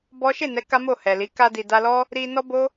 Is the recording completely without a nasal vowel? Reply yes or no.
yes